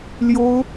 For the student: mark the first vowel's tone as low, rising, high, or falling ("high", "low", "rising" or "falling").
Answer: high